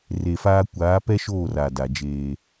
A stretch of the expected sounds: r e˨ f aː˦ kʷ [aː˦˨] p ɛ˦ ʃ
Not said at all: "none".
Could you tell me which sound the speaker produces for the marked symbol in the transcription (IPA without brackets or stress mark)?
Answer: aː˨˦